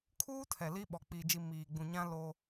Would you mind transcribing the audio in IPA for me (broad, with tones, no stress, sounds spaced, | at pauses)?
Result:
kʰ uː˦ tʰ ɛ˨ l i˦ ɓ ɔ˨ k͡p iː˨ d͡ʒ i˨ m iː˨ ɡ͡b ũ˨ ɲ ã˦ l o˦